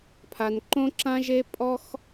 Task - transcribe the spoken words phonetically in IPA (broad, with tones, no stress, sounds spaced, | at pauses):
pʰ a˧ n ǃ õ˥ ǁ ã˥ ʒ e˥ pʼ ɔ˥ x